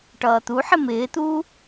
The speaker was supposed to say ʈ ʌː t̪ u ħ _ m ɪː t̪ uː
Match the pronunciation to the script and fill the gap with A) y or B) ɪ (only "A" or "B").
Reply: B